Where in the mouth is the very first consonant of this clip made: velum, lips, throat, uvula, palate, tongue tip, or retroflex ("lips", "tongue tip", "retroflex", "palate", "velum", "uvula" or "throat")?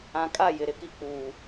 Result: velum